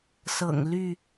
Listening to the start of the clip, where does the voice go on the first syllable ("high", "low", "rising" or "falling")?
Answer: low